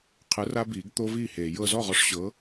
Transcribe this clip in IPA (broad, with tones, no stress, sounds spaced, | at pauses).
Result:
qʰ ɯ˨˥ r a˦ b iː˨˩˦ ɡ t̪ o˦ v iː˥˩ h eː˨˩˦ j ɤ˨ z ɔ˥˩ ʁ ɔ˨˥ ʂ ɕ ɤ˨˥